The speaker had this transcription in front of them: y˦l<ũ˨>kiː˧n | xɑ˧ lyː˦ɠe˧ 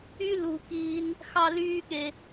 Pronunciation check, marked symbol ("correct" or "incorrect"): incorrect